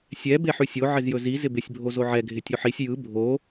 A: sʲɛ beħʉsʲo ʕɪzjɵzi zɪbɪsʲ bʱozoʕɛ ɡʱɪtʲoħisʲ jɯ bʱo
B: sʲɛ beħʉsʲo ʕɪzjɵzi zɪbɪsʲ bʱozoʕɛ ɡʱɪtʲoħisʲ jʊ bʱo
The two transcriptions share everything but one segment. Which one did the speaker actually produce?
A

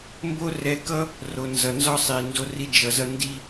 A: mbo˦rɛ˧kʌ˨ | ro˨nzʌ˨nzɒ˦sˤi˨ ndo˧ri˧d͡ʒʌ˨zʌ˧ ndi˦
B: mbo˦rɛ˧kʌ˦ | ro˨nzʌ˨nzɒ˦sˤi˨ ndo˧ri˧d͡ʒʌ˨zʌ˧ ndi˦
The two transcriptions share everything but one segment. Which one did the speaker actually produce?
B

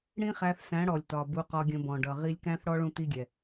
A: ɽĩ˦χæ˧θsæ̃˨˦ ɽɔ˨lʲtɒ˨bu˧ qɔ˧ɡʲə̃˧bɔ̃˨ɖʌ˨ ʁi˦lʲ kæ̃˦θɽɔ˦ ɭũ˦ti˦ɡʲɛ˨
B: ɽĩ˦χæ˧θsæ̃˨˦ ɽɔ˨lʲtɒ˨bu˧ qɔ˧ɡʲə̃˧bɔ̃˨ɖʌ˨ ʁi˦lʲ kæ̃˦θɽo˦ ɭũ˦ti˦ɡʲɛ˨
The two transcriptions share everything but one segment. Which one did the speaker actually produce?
A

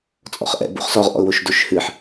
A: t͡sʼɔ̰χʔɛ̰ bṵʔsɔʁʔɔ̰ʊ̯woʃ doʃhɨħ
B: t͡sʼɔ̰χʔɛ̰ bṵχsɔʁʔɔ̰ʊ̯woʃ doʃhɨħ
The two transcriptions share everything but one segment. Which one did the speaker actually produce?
B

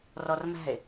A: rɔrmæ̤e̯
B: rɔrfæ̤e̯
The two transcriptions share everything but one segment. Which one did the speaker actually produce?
A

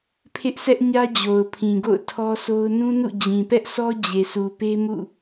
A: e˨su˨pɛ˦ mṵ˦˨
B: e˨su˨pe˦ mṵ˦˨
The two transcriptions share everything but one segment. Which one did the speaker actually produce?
B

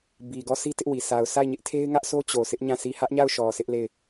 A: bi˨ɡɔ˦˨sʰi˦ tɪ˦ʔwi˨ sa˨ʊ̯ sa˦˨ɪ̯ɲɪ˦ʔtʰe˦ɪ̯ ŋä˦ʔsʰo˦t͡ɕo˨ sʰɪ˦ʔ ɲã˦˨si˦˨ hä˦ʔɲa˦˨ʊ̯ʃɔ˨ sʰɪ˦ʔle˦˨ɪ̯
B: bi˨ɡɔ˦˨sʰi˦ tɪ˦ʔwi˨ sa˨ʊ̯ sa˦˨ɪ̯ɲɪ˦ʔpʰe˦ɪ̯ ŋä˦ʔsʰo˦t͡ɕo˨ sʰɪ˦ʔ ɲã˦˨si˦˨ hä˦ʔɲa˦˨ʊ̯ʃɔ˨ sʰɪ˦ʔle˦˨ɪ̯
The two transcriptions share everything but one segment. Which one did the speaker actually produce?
A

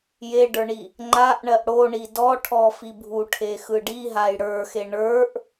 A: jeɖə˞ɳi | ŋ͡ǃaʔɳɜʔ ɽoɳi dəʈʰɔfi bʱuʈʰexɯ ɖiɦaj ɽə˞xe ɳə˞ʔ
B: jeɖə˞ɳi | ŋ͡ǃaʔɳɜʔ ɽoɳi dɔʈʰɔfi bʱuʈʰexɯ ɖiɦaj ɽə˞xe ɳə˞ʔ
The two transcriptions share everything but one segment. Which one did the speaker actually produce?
B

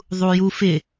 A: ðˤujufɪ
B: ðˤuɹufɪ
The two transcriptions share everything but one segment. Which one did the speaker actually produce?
A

